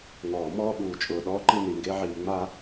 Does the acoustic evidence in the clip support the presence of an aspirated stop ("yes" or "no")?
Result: no